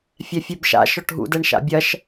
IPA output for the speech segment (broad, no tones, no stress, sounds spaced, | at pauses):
fʲ ɛ fʲ e b ʃ a̰ ʃ ɔ ʈ ɦ ṵ d ɛ ɳ ʃ a̰ bʲ ɐ ʃ